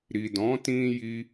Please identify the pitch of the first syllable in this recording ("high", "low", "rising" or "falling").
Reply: low